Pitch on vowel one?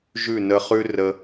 falling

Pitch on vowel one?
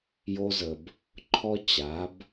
high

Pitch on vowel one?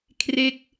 falling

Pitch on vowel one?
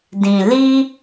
low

